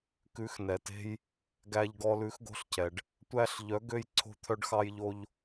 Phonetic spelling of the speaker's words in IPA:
kʉ˨˥xnɛ˩te̤˦j | ɡæ˦ʎɡɔ˦ lʉ˨˥xɡo̤˦ɬcʰɛ˩ɖ | tʷæ˦ɬ ʎœ˨˥ɡø˦j ǀʰo̤˦t̪ʰœ˦ɖxɑ˦jʎo˦ʎ

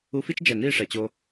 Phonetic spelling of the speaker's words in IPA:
u˧fi˦t͡ʃd͡ʒɛ˨niː˦˨ ʂɛ˨t͡ɕo˧

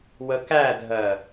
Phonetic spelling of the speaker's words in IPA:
wəkædʱɜ

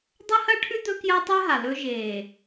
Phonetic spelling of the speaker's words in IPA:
dˤɐ˦hɐ˦ʈʰʉ˦ d̪ɵ˦kjɐ˦tˤe˦ɦa˨ lɵ˦ʒeː˨

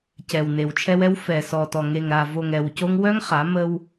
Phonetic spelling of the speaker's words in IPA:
cɛ˨wne˨wt͡ʃʰɛ˦wɛ˦w fɛ˨sɔ˨tɔ˨ ŋe˨ŋɾa˨vo˨ŋ ɛ˨wco˦ŋ wœ˦ŋχa˨˦ mə˦w

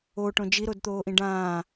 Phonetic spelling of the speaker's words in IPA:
oʈõ d͡ʒiɾodt̪oːʔĩ ɖãː

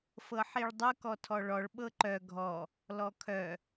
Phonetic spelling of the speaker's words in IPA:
fɤħiɭdˤɤk ɔtʰɔɭɔɭ ɓɤǃœ ɡʱɔ | lɔkʰœ

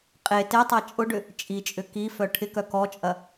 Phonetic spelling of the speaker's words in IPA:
qʼe tetˤa t͡ʃʼʊɖʏ | t͡ʃʼit͡ʃʼʏ kifœ ʈʰɪkœ kɔt͡ʃʼɐ

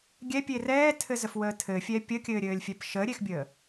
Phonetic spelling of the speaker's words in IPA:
ɡʲɛpʲe rɛːtʰɘzəfwəː tʰɘfʲɛ pʲəkʲɘːɾʲɘːlʲfʲɛp ʃəːɾʲexbʲəː

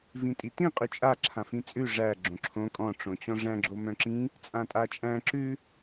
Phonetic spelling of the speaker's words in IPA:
vĩtʼitĩ qʼʉt͡ʃʼa ǁʰãfĩt͡sʼʉ ʐæ ɡ͡ǁõǁʰõ kʼɔ̃ ʈ͡ʂõt͡ɕɔ̃ʐæ̃ ɡ͡ǁomœ̃ǁĩ | t͡sʼãtʼat͡ʃʼæ̃ ǁʉ

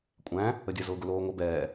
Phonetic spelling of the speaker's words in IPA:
kʷʼæ̃ | ədʲə zʊːɡʊloːŋʷə bɛː

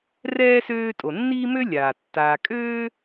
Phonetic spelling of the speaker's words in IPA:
rɛː˥søː˦ tʼo˩nːiː˥mø˥ lʲaː˩tːaː˨ kʼøː˥

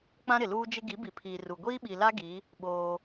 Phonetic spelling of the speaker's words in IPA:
k͡pã˦ɾɪ˨luː˦d͡ʒɪ˦ ɡi˨˦bi˨pʰiː˨ru˨ ɡʷiː˦ɓi˨la˦ ɡi˨˦ | ɓoː˦

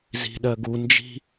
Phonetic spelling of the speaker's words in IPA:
zi̤ɗɜɡu nd͡ʒi̤

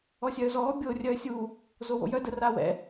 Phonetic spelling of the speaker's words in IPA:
ɔsʲœːzɔː bʲo rʲœːsʲu | zowo̰jœ dəraːwɛ̰

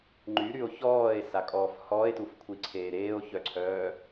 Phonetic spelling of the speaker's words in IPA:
ŋ͡ǃyɾyo̯ çɔːe̯sakʼɔːf hɔːe̯tufkʷʰiǀʰeː ɾeːo̯çœǀʰœː

